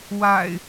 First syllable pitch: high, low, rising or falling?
low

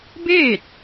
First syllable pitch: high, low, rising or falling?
falling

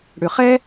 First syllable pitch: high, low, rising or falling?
low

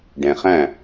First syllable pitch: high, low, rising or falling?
low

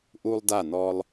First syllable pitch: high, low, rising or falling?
high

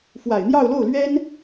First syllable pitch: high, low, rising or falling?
low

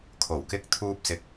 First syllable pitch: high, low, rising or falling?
low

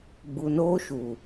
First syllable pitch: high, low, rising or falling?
low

